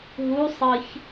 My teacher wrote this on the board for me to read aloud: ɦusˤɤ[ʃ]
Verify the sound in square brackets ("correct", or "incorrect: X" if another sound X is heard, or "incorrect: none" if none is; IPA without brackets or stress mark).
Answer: incorrect: ç